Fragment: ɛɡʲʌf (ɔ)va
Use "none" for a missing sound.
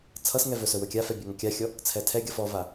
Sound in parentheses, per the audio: ɔ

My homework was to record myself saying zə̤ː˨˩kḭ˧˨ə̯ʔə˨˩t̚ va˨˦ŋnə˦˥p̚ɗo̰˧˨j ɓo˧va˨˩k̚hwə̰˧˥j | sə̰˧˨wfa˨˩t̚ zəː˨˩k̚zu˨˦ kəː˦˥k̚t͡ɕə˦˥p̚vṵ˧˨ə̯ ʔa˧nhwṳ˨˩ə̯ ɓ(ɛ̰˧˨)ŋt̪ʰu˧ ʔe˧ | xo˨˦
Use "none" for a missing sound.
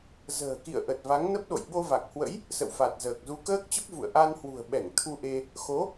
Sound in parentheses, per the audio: ɛ˧˩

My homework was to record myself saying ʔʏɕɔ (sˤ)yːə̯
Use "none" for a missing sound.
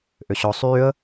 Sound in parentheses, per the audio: sˤ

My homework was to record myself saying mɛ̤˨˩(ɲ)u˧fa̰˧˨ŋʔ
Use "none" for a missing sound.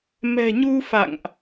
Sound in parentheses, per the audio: ɲ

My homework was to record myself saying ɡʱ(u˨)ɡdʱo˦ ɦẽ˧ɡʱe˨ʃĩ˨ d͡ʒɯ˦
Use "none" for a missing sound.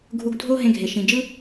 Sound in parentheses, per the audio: u˧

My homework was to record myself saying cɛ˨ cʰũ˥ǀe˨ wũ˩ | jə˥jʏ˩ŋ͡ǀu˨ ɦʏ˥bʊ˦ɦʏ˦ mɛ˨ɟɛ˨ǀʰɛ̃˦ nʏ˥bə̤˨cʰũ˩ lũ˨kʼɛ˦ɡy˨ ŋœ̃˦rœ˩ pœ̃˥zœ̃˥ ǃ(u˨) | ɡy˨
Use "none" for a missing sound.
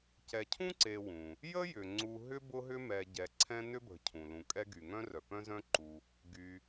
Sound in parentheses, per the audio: u˨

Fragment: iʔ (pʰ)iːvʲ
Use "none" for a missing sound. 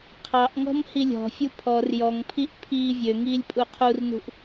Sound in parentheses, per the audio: pʰ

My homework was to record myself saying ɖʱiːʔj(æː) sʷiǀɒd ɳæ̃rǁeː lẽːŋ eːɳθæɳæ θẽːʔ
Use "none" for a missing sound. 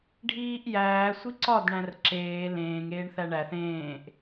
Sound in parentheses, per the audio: æː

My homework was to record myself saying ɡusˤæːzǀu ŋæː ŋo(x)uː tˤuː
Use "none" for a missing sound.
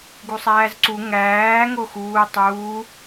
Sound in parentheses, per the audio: x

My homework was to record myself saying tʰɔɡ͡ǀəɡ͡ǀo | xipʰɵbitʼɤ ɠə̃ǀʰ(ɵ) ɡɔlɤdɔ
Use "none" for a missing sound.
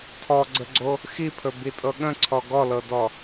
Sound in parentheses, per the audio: ɔ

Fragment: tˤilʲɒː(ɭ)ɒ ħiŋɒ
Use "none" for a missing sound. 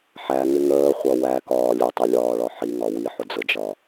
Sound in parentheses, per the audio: ɭ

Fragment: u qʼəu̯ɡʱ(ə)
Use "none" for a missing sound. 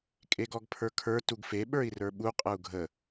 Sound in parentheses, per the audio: ə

